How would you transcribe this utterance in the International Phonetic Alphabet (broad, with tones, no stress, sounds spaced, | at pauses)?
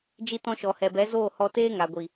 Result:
d͡ʒ i˧ t ɔ̃˧ ʃ ɔ˨ h ɛ˨ b ɛ˨˦ z oː˦˨ h ɔ˧ t eː˦ ŋ a˨ ɡʷ i˨